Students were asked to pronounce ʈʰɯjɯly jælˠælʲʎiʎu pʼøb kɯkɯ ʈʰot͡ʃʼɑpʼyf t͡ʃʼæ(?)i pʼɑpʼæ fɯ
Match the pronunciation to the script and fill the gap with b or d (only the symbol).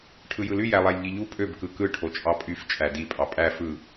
d